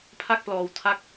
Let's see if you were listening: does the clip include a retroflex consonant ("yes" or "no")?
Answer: no